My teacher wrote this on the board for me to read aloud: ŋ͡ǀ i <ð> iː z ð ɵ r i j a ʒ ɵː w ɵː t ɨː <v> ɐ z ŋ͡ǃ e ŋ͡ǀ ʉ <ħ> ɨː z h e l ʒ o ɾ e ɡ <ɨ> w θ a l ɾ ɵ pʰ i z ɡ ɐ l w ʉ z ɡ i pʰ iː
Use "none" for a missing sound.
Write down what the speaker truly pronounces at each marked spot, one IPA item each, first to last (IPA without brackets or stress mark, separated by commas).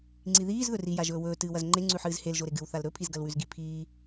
ð, w, ħ, ɨ